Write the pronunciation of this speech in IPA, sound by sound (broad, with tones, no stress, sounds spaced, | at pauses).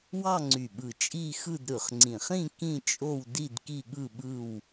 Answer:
w ɑ˥˧ ŋ͡ǀ y˨˩ ɓ ɯ˨˩ t͡ʃʼ i˥˧ x ɯ˥˧ d ɾ ɯ˨˩ χ ŋ͡ǀ ĩ˨˩ χ ĩ˥˧ k ĩ˥˧ t͡ʃʼ o˥˧ w d i˥˧ d k i˥˧ ɠ ɯ˥˧ ɓ ɯ˥˧ w